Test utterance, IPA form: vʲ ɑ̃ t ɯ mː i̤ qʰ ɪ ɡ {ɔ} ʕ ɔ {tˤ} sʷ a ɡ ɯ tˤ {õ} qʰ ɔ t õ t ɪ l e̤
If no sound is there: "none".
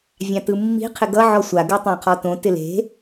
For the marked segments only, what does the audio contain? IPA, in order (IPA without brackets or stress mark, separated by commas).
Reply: ʌ, none, õ